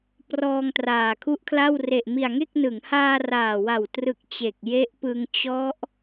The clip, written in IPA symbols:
p r ɔː˧ ŋ t r aː˨˩ kʰ u˦˥ ʔ kʰ l a˥˩ w r e˨˩ ʔ m i˨˩ a̯ ŋ e˥˩ k̚ n ɯ˩˦ ŋ h aː˧ r aː˨˩ w a˨˩ w t r ɯ˨˩ k̚ t͡ɕ e˨˩ k̚ j e˦˥ ʔ p ɯ˧ ŋ t͡ɕ ɔ˦˥ ʔ

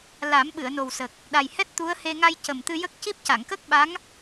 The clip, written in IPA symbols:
l a˨˩˦ m ɓ ɨ˨˩˨ ə̯ n o˨˩ w s ə˨˩ k̚ | ɗ a˨˩ j h ɛ˦˥ t̚ t̪ u˧˥ ə̯ h e˧ ŋ a˧ j c ə˨˩ m t̪ ɨ˧ j ə˦˥ k̚ c i˦˥ p̚ c a˨˩˨ ŋ k ə˦˥ k̚ ɓ a˧˥ ŋ

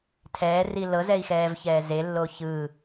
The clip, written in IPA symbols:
tʰ ɛː r i l ɤ z ɛ i̯ x ɛː v ç ɛː z e lː o ç ɯ

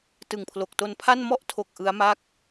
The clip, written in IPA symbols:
t ɯ˨˩ ŋ pʰ l o˨˩ k̚ t o˧ n pʰ a˥˩ n m ɔ˥˩ ʔ tʰ o˨˩ k̚ ʔ ɯ˦˥ a̯ m a˥˩ k̚

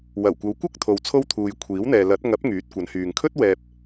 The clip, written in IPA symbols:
w ɐ˨˩ w kʷ ɐ˨˧ w kʷ ɐ˥ k̚ t̪ʰ o˨ w t͡sʰ o˥ w t̪ʰ uː˨ j kʷʰ iː˨˥ w n̪ ɛː˨ l ɐ˨˥ t̚ ŋ ɐ˨˥ p̚ ŋ yː˨˥ t̚ kʷ ɐ˨˧ n h yː˨ ŋ kʰ ɵ˥ t̚ w ɛː˨ p̚

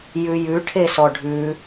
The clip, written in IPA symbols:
j ʉ j ʉ ʈʰ e s ɔ ɖʱ ʉ

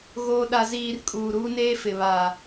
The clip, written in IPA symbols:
ɣ oː˨ ɗ a˨ z iː˨ r kʼ uː˨ ɾ uː˦ n eː˦ f ɪ˨ β a˨

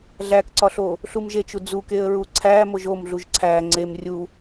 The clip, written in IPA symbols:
ɮ æ k ǀ ɒ ɬ o | ɬ u m ʒ e t͡ʃ u d͡z u k e ə̯ ɹ u ǀʰ æ m o ʒ o m ɮ u ʒ ǀʰ æ ŋ͡ǀ e m rʲ u

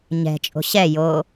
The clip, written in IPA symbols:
ɲ ɛ̤ t͡ʃʼ o̤ ɕ ɛ j o

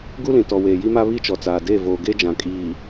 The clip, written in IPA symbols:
ɡ u˦ l ĩ˨ t ɔ˨ w eː˨ j i˦ m a˦ β i˦ t͡ʃ ɔ˨ t͡s aː˨ d eː˦˨ v oː˨ ɡ e˦ d͡ʒ ã˨ kʼ iː˨

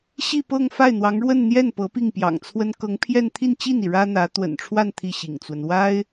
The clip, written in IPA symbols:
ɕ i˥˧ p ɤ˥˧ ŋ f a˥˩ ɪ̯ n̪ w ɑ˧˥ ŋ ɻ w ə˥˧ n n̪ j ɛ˥˩ n p ɤ˧˥ p i˥˩ ŋ p j ɑ̰˨˩ ŋ t͡sʰ w ə˥ n k ɤ˧˥ ŋ pʰ j ɛ˥˧ n t̪ʰ i˥˧ n t͡ɕ i˥˩ n i˩ ɻ ä˥ n̪ ä˧˥ t̪ w ə̰˨˩ n ʈ͡ʂʰ w a˥˧ n t̪ʰ i˥˩ ɕ ḭ˨˩ ŋ t͡s w ə˦ n w a˥ ɪ̯

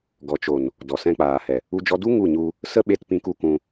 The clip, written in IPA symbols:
ɡ ɔ˨ t͡ʃ o˨ n | d ɔ˨ s ɛ̃˧ k͡p aː˨ h ɛ˨ | u˧ d͡ʒ ɔ˧ d u˦ ŋ u˦˨ ɲ u˧ | s ə˦ ɓ e˧ t p ĩ˧ k u˧ k ũ˧

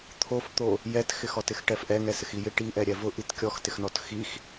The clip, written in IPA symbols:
t̪ʰ o f t̪ o | j ɛ t x ɪ x ɔ t ɪ x ʈ ɛ f ʔ ɛ ŋ ɛ s ɪ x i j ɪ ʈ i ʔ ɛ ɾʲ ɛ v ʊ ʔ i t kʲ ɔ x t ɪ x n ɔ t x i x

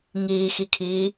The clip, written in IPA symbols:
ŋ iː x i kʰ iː

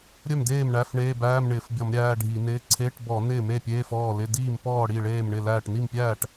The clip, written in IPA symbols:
ɾʲ œ˥˩ m d eː˥˩ m ɳ æ˧˥˧ f ɳ eː˧˥˧ b æː˧˥˧ m ɳ ɪː˧˩˧ f bʲ ɔ˧˩˧ m ɾʲ æː˧˥˧ ɖʱ i˧˩˧ n ɪː˧˥˧ ǀʰ e˧˥˧ ʈ b ɔ˧˩˧ n ɪː˥˩ m e˥˩ pʲ eː˧˥˧ f ɔː˥˩ l ɪ˧˥˧ d iː˥˩ m p ɔː˥˩ ɽ i˥˩ ɭ eː˥˩ m ɳ ɪ˥˩ l æː˥˩ ʈ n i˥˩ m pʲ æː˥˩ ʈ

